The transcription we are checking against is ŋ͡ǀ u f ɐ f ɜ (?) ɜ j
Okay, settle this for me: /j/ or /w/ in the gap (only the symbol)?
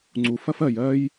j